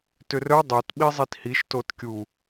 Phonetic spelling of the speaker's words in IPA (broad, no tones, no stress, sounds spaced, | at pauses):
t ʏ r œ dˤ o t ɓ i zˤ i t h i ʃ t o t kʲ u